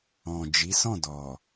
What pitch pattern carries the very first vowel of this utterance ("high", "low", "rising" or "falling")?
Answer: low